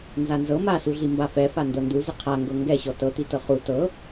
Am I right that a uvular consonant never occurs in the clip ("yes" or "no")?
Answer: no